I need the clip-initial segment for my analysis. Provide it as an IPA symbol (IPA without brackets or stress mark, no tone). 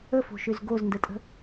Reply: ə